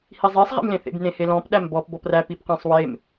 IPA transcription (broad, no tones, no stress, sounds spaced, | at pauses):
h i zˤ e sˤ ʁ ḛ m l ẽ θ ḛ b n ẽ h e l ɔ̃ p ɗ æ m b ɔ p b ɔ p r æ p i p q æ̃ sˤ w e m